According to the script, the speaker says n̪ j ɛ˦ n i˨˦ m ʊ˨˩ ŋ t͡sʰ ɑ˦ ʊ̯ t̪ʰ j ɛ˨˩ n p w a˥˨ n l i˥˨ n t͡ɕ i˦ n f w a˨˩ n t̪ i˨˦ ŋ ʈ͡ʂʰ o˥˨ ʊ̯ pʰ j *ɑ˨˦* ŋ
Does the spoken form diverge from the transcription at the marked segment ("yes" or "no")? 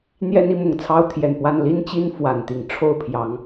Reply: no